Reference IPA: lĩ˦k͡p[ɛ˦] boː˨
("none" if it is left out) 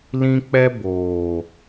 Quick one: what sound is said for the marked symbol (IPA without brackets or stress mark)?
ɛ˦